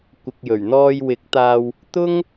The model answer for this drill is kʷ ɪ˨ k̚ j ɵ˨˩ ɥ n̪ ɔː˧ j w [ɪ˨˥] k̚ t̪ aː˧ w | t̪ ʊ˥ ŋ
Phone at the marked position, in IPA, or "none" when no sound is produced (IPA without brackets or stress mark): ɪ˨˥